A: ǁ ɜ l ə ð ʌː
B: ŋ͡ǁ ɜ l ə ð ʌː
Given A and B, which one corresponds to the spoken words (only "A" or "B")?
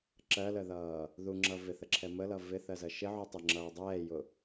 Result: A